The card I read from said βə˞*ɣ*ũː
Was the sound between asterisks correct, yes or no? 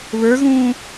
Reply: yes